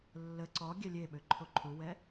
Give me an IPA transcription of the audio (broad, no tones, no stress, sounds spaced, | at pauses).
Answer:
lː ə ǀ ɔ ɡʲ ɛ lʲ e ɓ ø ǃʰ o ǃʰ u w ɛ